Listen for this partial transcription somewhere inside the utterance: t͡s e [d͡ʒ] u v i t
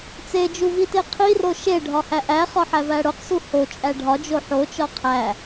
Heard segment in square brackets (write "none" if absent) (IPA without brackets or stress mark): d͡ʒ